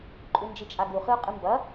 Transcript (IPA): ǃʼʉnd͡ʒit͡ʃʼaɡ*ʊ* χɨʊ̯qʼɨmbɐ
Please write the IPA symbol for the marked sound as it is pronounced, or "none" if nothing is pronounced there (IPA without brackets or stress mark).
u